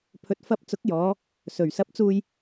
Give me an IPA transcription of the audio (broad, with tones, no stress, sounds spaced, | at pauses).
pʰ ɵ˨ t̚ f ɐ˧ p̚ t͡s ʊ˨˥ k̚ j ɔː˨˧ | s ɵ˨˩ ɥ s ɐ˨˥ p̚ t͡s uː˧ j